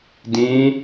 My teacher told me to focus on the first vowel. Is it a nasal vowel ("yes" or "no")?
yes